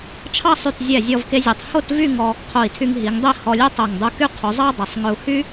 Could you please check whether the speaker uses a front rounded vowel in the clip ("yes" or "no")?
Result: yes